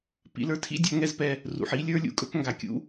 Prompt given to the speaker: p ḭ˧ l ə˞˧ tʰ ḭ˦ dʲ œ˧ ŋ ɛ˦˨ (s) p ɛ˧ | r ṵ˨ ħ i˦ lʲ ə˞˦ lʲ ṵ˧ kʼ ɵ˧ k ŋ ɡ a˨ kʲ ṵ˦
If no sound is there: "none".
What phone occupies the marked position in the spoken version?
z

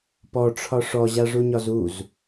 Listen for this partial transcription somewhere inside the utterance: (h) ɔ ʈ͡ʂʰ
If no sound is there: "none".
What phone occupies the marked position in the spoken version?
p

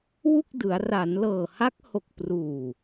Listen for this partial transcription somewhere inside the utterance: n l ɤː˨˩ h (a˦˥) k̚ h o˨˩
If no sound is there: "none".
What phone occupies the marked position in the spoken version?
a˦˥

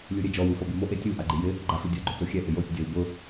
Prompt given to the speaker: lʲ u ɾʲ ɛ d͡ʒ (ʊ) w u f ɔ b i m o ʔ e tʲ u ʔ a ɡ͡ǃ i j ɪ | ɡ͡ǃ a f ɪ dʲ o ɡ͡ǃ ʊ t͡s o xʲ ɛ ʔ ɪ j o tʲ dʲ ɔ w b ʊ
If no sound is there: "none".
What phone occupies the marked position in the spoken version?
ɔ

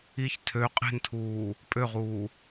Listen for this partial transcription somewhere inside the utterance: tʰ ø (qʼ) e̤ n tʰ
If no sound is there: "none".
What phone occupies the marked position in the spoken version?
qʼ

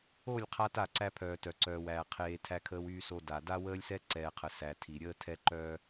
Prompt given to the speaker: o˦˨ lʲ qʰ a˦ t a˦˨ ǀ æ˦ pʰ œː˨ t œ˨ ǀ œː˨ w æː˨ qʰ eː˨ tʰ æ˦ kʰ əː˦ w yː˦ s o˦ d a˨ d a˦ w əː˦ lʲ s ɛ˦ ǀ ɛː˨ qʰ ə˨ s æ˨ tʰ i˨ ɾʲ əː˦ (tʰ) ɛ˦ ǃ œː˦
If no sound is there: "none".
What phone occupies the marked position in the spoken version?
tʰ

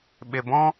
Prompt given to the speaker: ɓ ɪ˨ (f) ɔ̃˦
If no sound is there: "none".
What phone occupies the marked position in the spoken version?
b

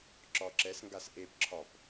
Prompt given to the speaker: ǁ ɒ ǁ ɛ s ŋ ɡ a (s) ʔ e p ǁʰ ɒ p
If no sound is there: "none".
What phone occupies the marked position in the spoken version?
s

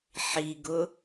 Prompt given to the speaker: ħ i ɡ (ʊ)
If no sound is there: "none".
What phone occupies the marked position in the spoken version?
ʊ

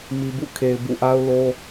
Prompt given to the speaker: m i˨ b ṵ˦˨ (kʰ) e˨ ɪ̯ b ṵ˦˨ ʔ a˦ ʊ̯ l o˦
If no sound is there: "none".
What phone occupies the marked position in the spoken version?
kʰ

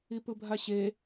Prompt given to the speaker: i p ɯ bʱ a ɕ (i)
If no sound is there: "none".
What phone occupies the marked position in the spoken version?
e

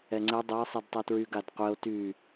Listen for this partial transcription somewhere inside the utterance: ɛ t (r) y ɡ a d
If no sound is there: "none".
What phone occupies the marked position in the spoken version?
ɹ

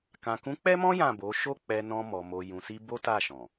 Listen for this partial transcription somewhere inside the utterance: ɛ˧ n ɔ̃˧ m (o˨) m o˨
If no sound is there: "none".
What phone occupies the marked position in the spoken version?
ɔ˨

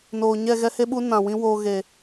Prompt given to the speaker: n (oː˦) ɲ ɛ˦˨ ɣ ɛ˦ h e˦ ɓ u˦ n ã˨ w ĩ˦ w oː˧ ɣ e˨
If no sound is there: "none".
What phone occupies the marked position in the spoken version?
oː˨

